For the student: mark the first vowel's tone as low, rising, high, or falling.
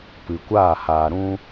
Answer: low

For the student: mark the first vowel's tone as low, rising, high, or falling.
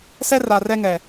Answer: high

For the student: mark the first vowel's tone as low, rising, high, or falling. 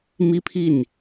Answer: high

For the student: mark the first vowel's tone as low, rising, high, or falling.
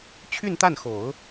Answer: falling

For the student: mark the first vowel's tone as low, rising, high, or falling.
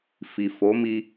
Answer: low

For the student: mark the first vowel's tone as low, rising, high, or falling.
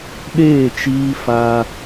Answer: falling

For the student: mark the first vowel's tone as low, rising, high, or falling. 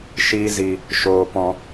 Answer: high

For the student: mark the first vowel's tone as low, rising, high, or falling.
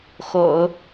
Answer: low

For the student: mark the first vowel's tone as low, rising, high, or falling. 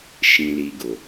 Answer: low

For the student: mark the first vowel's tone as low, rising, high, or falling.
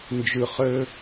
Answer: low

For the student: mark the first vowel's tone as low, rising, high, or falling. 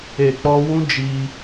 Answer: low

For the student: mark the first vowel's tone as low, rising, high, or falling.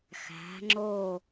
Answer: rising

